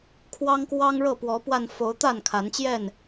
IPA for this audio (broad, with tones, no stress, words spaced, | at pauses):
kʰwɑ˦ŋkwɑ˦ŋɻɤ˥˨ pwɔ˨˦pwa˧nfo˨˦ʊ̯ t̪a˥˨nkʰa˨˦nt͡ɕjɛ˥˨n